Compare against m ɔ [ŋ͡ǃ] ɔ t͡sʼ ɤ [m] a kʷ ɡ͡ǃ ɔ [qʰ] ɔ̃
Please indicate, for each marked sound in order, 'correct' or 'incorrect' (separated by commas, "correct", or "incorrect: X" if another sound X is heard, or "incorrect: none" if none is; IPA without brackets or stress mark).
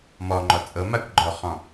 correct, correct, incorrect: χ